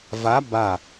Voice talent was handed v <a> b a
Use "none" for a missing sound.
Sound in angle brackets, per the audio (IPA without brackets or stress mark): a